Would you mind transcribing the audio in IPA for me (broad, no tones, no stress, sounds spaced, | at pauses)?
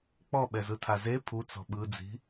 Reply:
k͡p ɔ ɓ ɛ z ɯ tʰ a z e pʰ u t͡s ɔ̤ ɓ ɯ d͡z i̤